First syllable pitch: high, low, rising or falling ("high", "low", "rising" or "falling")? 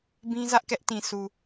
high